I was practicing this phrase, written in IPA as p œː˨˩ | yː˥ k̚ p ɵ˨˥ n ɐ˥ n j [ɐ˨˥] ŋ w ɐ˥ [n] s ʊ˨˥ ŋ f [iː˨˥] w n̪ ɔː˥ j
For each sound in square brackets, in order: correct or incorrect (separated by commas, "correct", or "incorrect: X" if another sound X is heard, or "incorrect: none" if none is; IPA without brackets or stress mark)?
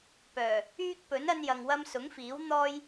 incorrect: ɐ˨, incorrect: m, correct